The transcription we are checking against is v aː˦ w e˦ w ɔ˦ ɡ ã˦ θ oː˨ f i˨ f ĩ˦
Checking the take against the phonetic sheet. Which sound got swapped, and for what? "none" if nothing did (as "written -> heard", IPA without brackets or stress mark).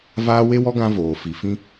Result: θ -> v